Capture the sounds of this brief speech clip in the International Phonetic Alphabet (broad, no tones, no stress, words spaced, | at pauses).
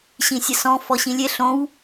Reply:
ɕĩsʲəsɔ̃ fɔɕĩlʲe ɬõw